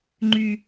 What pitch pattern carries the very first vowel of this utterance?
high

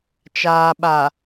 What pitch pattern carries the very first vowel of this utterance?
low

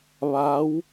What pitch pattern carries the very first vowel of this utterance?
rising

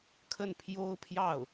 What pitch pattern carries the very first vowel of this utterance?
falling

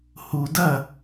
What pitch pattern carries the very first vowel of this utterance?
low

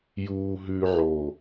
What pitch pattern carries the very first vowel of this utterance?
low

